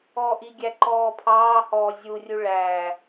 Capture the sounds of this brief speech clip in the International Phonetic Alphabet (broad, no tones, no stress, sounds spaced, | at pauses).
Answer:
ɔː ʔ i ɡʲ æ ǃ ɔː pʰ ɑː h ɔː zʲ u rʲ u ɭ æ